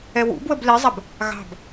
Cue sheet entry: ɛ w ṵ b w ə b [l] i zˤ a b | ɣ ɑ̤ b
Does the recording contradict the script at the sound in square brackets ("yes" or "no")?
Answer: no